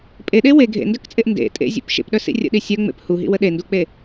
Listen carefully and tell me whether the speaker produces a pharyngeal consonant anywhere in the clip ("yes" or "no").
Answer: no